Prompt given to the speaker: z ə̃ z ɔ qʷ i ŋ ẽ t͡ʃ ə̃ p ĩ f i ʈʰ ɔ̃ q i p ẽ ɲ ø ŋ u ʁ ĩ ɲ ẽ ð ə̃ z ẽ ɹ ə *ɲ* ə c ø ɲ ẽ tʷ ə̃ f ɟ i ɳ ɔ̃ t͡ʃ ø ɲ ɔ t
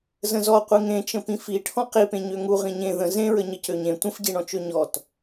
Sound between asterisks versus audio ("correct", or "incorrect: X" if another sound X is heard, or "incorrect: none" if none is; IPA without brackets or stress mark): correct